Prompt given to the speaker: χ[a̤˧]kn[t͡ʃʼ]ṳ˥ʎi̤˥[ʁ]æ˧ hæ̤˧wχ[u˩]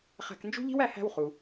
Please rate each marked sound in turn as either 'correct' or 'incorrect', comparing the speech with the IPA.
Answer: incorrect, incorrect, incorrect, correct

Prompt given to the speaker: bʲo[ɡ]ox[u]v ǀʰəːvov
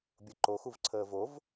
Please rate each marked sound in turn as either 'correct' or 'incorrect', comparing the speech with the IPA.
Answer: incorrect, correct

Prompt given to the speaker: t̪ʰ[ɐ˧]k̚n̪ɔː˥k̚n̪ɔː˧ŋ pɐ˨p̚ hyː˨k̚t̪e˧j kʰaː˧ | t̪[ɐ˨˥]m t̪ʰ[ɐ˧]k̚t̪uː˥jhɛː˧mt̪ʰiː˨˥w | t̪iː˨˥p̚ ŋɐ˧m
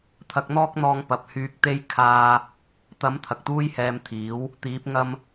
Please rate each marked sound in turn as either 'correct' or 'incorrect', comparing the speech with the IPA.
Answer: correct, correct, incorrect

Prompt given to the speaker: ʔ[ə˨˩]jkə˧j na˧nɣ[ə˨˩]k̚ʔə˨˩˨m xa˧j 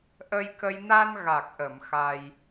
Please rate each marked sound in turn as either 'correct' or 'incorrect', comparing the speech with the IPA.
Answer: incorrect, incorrect

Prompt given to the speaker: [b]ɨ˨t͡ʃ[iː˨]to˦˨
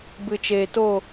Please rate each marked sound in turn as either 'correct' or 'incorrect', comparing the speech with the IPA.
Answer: correct, incorrect

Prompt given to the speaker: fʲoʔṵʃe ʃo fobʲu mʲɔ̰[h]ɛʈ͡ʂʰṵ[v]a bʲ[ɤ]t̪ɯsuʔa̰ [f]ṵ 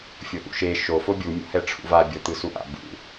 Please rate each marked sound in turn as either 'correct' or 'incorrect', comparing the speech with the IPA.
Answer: correct, correct, correct, incorrect

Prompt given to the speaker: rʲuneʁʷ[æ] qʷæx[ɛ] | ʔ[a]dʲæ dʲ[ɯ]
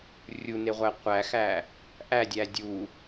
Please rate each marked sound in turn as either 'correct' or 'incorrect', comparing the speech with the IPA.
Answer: correct, incorrect, incorrect, incorrect

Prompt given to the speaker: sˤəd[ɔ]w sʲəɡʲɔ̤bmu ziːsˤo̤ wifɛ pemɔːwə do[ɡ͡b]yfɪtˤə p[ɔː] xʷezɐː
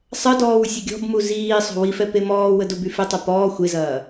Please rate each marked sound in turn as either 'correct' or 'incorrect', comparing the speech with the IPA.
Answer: incorrect, incorrect, correct

